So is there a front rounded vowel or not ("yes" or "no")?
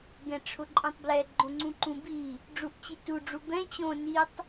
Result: no